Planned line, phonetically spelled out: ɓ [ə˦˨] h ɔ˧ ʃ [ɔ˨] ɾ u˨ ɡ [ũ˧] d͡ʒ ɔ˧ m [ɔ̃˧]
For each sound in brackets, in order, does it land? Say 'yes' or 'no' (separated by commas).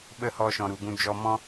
yes, no, yes, no